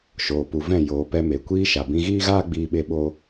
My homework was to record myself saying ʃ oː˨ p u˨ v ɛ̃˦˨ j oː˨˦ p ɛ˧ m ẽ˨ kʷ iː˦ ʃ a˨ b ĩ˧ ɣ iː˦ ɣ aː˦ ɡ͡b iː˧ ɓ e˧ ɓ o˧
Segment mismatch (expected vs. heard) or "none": ẽ˨ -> e˨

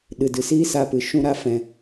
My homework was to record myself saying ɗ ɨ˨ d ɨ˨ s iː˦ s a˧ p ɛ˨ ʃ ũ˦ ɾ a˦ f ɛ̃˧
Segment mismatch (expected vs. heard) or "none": ɛ˨ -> ɨ˨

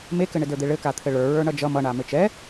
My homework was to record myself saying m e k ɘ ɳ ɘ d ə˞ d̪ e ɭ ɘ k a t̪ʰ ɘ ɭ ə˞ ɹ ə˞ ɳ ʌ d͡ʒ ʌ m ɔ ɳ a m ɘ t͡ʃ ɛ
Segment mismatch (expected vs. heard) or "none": ɔ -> ʌ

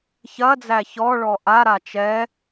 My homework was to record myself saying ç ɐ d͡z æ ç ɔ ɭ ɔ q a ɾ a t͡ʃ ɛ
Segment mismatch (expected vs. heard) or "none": q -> ʔ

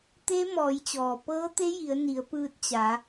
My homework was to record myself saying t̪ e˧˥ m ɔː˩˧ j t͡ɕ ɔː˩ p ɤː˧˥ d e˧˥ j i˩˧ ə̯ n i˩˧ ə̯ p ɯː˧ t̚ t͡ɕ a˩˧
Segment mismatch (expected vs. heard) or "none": d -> t̪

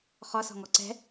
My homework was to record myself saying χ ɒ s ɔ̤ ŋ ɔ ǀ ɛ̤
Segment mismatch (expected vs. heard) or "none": none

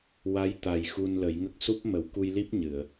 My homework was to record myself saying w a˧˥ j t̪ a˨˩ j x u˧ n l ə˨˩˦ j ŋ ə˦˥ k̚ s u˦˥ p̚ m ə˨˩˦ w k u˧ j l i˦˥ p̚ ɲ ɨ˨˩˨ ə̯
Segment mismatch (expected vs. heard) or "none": none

